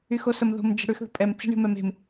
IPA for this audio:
y x o s ə m ð o̤ m d͡ʒ ə̤ ɽ ʉ x ð ə̤ pʼ ɛ m t͡s e̤ ɳ e̤ m ɛ m e̤ m

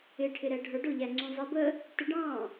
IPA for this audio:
ɪ ʈʰ ɪ ɾ ɛ ɖʱ ə˞ ɖ ʊ ʎ æ ŋ͡ǀ ũ zˤ i b ə | t ɪ ɖ ɑ̃

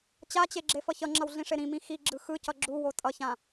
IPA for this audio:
t͡ɕ a t͡ɕ e ɡ͡ǁ e f ʌ ç ʌ ŋ͡ǁ ʌ w ɮ ĩ ʂ e ɾ ĩ m ĩ x i ɡ͡ǁ ɯ x ɯ c ʌ ɡ͡ǁ u w o tʼ ʌ ç ã

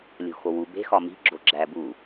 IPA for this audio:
lʲ o̤ x o w u b e̤ x ɒ m i̤ ɡ͡ǁ o ɡ͡ǁ æ b u

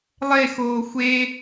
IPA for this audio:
lˠ e x oː xʷ e

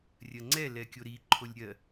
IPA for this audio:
rʲ ɜ ŋ͡ǀ ɛ l ɛ kʲ o ɾ i ǃʰ o lʲ ɾʲ ɜ

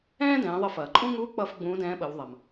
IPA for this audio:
ɛ̃ː˥ d ɛ̃ː˩˧ ðˤ ə˧ f ɐː˩ ǃʼ ũ˥ ŋ u˧˥ k͡p ʌ˧ f ɡ͡b ũː˧˥ d ɛ̃ː˧˥ ɓ ə˩˧ w ðˤ ɐ˩ m

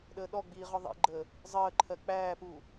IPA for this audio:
ɗ əː ɗ ɔ ɡ͡b iː ʁ ɔ ðˤ ḭ ɡ͡ǃ əː | zˤ əː ǃʰ ɜ k͡p æː p uː

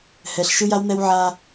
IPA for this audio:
h ɛ˨ ɬ ʃ ɯ˦ j a˦ w n̪ ɛ˦ w ʕ a˦

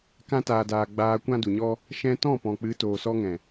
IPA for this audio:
k ã˧ t aː˨ d aː˨ ɡ͡b aː˧ kʷ ã˦ d u˨ ɲ ɔ˦ | ʃ ɛ̃˧ t ɔ̃˦˨ p ɔ̃˨ k͡p ɨ˨˦ t oː˨ s ɔ˧ ŋ ɛ̃˨

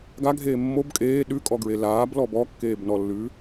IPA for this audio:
ɡ a ɡʱ eː mː o b kʼ eː ɗ ʉ kʼ ɔ ɡ ɹ e l aː b l ɔ b ɔ kː eː b n ɔ lː ʉː

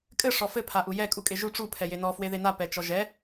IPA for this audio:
kʼ ɘ ʂ ɔ f ɘ pʰ a ʔ u j ɛ kʼ u kʼ e ʒ u ʈ͡ʂ u pʰ ɛ j e n ɔ f w e ð e n a p ɛ t͡ʃ ɔ ʒ ɛ

